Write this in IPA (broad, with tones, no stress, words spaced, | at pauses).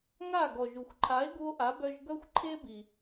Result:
ŋa˥˩ ɡɔ˩ʒu˩xʷǃʰa˩˥e̯ ɡu˧o̯ʔa˩˥bœ˧ʒ ɡœ˥xʷǃʰe˥bi˩